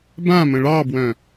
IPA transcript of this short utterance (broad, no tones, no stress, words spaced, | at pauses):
bãmə̃ ɭɑbwœ̃